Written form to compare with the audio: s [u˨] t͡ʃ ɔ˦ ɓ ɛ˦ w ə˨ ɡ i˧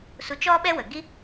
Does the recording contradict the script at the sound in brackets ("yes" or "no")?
yes